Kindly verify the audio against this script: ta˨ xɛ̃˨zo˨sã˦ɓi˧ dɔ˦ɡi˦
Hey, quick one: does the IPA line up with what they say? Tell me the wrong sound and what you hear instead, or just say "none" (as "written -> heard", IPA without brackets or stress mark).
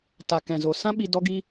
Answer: x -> k